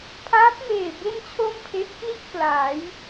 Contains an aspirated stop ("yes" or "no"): yes